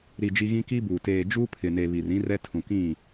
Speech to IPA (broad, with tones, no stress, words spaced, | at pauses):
ɾi˨ d͡ʒi˦ ɣĩ˦ki˦buː˨ teː˨ d͡ʒuː˦pʰɪ˨ne˨ βi˨rĩ˦ rɛ˦tʰũ˨ kĩ˦˨